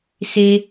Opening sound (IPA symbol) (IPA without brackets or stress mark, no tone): s